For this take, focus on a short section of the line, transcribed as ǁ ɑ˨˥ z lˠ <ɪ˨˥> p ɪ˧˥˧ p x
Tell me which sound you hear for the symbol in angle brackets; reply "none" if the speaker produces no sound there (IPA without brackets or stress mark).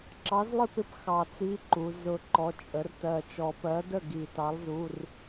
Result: ɪ˥